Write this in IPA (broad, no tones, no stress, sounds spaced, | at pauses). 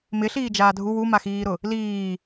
m ɪ ɬ iː d͡ʒ aː dʱ u w u m a x iː ɾ ʊ | l iː